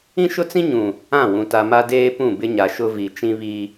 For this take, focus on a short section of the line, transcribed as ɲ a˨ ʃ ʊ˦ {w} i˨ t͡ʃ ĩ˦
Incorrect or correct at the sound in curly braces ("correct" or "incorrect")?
incorrect